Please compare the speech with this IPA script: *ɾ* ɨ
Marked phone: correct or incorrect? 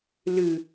incorrect